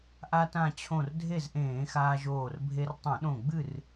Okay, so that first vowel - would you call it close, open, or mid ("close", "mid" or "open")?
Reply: open